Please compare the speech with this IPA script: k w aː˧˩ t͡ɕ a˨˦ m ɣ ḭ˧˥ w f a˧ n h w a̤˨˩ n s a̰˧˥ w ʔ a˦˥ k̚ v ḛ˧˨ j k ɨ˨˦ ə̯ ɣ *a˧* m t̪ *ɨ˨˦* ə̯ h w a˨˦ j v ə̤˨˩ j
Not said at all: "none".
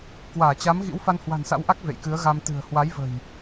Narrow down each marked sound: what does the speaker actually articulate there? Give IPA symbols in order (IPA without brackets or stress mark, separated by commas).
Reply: a˧, ɨ̤˨˩